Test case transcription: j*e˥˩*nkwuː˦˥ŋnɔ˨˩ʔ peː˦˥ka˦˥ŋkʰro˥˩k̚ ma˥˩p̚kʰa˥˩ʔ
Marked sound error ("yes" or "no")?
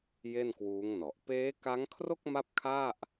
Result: no